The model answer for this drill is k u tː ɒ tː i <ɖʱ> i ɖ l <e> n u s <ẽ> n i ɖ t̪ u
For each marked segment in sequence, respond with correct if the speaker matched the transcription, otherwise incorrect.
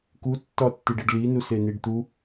incorrect: ɖ, incorrect: i, incorrect: e

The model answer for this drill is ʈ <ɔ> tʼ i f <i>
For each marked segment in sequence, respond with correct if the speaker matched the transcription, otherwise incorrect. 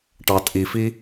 incorrect: ɑ, correct

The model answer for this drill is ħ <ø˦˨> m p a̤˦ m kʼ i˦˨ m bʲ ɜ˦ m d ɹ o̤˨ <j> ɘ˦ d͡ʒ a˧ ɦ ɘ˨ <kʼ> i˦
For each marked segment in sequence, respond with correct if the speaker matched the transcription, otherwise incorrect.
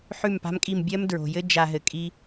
incorrect: ʉ˦˨, correct, correct

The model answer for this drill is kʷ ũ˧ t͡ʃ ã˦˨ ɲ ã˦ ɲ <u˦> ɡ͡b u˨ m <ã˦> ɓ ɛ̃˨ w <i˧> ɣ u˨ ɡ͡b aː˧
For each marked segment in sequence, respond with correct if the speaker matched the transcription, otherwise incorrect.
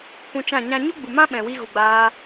correct, correct, correct

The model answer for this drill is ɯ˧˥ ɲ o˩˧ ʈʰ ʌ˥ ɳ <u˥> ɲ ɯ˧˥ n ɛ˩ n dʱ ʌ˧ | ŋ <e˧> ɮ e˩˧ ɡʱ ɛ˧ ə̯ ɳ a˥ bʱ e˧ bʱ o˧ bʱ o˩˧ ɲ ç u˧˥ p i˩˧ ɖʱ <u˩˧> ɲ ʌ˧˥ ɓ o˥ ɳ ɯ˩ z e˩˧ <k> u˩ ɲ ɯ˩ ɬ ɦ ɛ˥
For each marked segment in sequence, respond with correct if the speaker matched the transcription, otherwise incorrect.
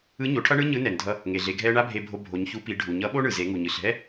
incorrect: ɯ˥, incorrect: e˩, incorrect: u˩, incorrect: ŋ

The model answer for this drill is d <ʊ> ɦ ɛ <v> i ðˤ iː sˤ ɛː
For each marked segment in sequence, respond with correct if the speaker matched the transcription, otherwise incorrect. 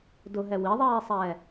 correct, incorrect: w

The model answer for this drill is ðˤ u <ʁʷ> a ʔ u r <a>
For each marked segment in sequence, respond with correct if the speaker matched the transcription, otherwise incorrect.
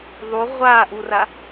correct, correct

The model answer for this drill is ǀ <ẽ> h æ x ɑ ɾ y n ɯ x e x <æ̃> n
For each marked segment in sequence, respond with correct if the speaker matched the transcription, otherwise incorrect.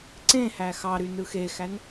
correct, incorrect: æ

